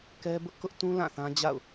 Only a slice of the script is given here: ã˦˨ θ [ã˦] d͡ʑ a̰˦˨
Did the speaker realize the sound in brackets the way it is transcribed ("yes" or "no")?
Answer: yes